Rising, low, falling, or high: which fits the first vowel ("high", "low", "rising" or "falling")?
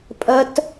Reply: high